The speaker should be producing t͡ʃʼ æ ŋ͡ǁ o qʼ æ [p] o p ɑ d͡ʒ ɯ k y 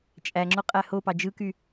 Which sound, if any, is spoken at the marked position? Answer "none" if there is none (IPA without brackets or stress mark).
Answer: h